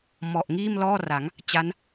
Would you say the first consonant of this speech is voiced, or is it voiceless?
voiced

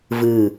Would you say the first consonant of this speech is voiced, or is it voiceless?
voiced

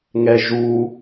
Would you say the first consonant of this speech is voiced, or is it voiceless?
voiced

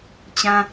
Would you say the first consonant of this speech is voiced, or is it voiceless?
voiceless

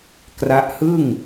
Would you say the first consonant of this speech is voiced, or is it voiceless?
voiceless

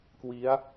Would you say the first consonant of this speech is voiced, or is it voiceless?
voiceless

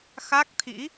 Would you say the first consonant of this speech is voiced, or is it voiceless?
voiceless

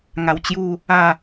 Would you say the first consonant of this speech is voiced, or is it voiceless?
voiced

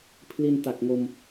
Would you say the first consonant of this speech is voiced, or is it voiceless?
voiceless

